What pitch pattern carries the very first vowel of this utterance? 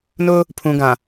high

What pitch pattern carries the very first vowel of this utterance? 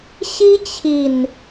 high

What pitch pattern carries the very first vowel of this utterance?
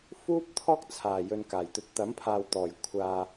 high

